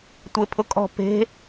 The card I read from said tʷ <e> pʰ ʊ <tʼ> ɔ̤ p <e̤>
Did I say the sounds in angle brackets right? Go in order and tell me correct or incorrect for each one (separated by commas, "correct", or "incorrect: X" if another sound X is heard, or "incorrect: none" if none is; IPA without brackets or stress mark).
correct, incorrect: kʼ, correct